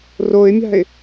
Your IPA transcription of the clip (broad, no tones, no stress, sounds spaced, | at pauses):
r o ɪ̯ mʲ a̤ ɪ̯